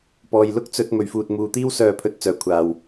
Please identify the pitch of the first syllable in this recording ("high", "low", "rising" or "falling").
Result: low